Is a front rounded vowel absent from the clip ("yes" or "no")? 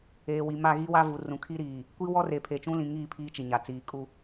yes